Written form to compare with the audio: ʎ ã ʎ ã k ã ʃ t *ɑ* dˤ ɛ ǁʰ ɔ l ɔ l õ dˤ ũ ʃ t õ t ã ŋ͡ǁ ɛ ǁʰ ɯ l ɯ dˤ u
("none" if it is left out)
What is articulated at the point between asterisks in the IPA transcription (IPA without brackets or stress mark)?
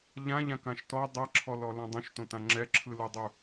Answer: ɔ